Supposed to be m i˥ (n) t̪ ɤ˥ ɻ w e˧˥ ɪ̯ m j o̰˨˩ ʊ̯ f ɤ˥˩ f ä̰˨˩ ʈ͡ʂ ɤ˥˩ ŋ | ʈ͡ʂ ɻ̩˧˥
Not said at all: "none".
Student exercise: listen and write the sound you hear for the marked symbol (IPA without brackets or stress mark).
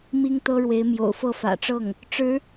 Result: ŋ